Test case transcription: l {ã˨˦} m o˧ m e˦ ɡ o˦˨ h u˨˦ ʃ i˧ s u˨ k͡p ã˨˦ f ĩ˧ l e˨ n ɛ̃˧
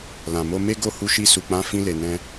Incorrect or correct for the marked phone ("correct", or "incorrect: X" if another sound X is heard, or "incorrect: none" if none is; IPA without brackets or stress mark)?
incorrect: ã˨